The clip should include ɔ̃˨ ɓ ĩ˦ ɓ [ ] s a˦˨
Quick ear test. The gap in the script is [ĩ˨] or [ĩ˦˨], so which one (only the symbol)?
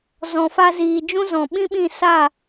ĩ˦˨